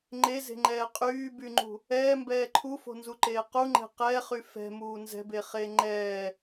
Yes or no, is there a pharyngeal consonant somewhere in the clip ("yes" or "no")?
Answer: no